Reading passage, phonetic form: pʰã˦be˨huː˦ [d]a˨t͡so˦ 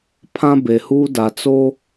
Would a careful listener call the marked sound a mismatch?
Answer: no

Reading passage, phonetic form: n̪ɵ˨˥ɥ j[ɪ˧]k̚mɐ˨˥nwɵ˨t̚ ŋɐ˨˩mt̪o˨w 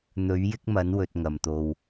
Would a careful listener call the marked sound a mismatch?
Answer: yes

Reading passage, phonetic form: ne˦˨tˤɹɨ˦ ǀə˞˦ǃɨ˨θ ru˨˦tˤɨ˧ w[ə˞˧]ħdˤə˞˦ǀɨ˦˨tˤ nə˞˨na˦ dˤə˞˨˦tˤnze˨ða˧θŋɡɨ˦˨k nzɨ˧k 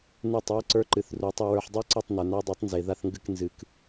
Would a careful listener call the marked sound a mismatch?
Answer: no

